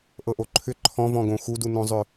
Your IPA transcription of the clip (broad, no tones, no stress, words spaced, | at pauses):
ʔɤʔoǃʰʏ ǃʰɔ̃vɔ̃ɡõ xudunõzˤʏ